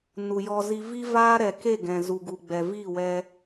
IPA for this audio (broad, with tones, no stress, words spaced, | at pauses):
nu˨jɔ˧ zi˧vi˦vaː˦ ɾɛ˨ke˦˨ ɡɛ̃˨ zu˨ɡu˨ ɡ͡bɛ˨viː˦˨wɛ˧